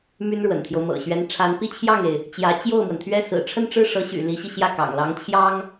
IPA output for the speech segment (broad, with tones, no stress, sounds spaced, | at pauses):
m y˥ n ɻ w ə̰˨˩ n t̪ʰ j o˦ ʊ̯ m ɤ̰˨˩ ɕ ɥ ɛ˧˥ n ʈ͡ʂʰ a˧˥ n p i˥ t͡ɕʰ j ɑ˥˩ ŋ e˩ ɪ̯ | t͡ɕ j ä˧˥ t͡ɕ j o˥˩ ʊ̯ m w ə˩ n t̪ʰ ɥ ɛ˥˩ s ɹ̩˨˩ ʈ͡ʂʰ ə˥˧ n ʈ͡ʂ ɻ̩˥˩ ʂ ɤ˧˥ ɕ y̰˨˩ l i˧˥ ɕ i˧ ɕ j ä˥˩ k ɑ̰˨˩ ŋ l ɑ˧˥ ŋ t͡ɕʰ j ɑ˥ ŋ